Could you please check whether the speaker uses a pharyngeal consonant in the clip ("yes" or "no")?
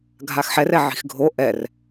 yes